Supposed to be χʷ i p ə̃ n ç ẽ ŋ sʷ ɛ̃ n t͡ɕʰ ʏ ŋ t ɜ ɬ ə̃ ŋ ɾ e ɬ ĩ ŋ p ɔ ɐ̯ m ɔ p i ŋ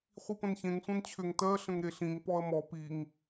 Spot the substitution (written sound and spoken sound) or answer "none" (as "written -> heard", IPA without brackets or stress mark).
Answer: none